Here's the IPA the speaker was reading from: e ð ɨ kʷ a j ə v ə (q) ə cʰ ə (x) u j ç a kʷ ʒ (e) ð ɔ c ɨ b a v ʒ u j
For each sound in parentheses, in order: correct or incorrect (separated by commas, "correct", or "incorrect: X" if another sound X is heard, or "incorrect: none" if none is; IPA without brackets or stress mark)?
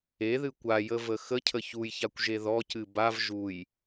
incorrect: x, incorrect: ç, correct